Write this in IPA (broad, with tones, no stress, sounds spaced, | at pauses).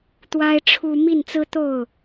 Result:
t̪ w a˥ ɪ̯ ʈ͡ʂʰ u˥ m i˥˩ n t͡s ɹ̩˥ t̪ o˥˩ ʊ̯